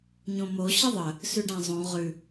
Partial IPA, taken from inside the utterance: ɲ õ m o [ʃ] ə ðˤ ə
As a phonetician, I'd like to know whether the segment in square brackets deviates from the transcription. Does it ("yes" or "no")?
yes